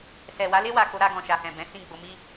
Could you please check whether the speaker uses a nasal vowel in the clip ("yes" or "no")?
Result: yes